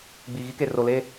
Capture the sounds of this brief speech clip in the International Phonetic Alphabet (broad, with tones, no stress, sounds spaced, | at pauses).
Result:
ɡ͡b i˨ ɣ i˦ k e˨ r o˨ l e˦